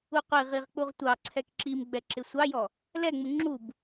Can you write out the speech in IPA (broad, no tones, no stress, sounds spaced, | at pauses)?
u qʷ i ʁ i ʁ k͡p u ʁ tʷ ɑ ǀʰ ɛ k ǁ i m ɡ͡b ɛ ǁ ɪ sʷ ɑ j ɔ | l ɛ ŋ͡m u ŋ͡ǁ u b